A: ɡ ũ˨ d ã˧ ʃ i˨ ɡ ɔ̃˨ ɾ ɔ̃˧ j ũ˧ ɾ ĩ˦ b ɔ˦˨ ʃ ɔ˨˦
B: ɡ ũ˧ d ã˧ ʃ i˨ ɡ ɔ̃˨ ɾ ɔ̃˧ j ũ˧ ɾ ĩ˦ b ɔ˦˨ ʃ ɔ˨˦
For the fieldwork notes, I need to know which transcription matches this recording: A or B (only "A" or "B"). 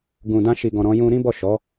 A